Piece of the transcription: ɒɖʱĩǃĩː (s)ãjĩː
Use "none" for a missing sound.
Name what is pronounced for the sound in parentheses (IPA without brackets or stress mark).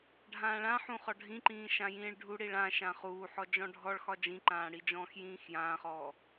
ʃ